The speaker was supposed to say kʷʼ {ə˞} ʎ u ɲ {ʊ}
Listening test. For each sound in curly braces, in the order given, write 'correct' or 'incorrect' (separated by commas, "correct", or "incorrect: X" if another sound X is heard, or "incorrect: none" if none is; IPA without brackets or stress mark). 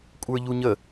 correct, incorrect: ə